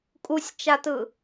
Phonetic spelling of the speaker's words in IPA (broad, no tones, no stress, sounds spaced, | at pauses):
kʼ u sʲ t͡ʃ a t ɯ